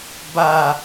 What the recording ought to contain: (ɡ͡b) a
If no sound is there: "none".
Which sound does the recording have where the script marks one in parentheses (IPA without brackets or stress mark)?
b